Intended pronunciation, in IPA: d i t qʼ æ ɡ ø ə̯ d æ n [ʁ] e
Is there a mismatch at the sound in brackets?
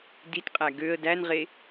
no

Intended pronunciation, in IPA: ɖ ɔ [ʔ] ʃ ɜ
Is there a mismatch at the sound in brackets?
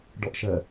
no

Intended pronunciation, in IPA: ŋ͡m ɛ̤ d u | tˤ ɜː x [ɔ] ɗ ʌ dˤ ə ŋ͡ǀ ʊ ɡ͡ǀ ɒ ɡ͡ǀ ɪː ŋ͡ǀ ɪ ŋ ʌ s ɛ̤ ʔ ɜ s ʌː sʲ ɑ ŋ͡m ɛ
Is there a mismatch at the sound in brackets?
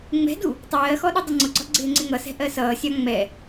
no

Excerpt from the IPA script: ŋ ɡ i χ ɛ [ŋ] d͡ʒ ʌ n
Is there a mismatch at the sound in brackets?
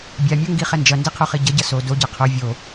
yes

